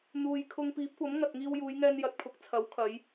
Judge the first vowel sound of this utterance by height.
high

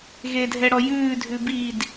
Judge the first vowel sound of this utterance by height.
mid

